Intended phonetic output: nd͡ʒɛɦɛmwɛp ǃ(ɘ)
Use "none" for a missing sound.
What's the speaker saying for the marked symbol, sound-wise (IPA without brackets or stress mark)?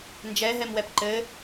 ɘ